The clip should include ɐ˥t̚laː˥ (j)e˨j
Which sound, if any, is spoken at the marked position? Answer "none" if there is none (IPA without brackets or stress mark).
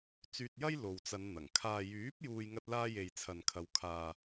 j